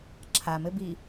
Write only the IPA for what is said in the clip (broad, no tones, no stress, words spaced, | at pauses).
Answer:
ǁʰamɘbi